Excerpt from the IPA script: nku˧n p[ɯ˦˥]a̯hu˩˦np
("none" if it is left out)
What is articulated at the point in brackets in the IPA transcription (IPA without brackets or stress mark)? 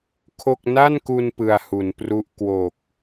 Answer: ɯ˧